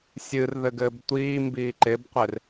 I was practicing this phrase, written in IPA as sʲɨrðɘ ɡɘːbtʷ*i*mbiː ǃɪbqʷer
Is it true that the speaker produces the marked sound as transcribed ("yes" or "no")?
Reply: no